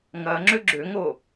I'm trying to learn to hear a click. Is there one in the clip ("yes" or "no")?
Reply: yes